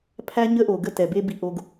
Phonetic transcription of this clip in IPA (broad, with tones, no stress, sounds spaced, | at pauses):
pʰ æ˥ ɲ ə˥ ʔ o˩ ɡ ə˥ t ɛ˩ b e˥ b i˧ ʔ o˧ ɡ